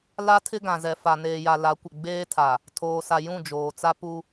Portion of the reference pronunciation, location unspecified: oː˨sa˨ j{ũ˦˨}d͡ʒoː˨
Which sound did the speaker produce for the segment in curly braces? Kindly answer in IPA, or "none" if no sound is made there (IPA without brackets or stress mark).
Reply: ũ˦˨